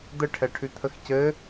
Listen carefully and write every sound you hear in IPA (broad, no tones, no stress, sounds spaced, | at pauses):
d̪ ə ʈʰ ɛ ʈʰ ʉ t̪ʰ ə x c ɘ